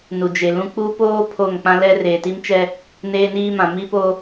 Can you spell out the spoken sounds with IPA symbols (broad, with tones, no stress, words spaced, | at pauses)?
nu˨ d͡ʒe˨lũ˦ k͡pu˦ poː˦ pʰo˦˨ŋk͡pã˦ lɛ˦reː˨ti˦mt͡ʃɛ˦ | neː˦niː˦mã˨ mi˦po˦